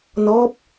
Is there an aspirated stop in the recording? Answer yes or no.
no